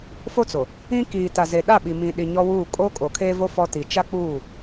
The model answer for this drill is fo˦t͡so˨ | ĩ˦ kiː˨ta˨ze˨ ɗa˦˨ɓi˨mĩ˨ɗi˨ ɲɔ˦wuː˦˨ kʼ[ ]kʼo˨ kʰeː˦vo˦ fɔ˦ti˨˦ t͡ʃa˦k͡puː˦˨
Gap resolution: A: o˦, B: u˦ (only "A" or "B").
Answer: A